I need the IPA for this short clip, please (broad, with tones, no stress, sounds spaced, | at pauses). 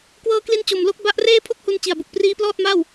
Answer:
k w ɤː˧ k l i˧ n t͡ɕ o˨˩ m l o˥˩ k̚ b a˦˥ ʔ r eː˥˩ pʰ o˥˩ k̚ h u˧ n t͡ɕ i˨˩ a̯ b u˨˩ k̚ p r iː˦˥ p l ɔː˥˩ t̚ m aː˥˩ w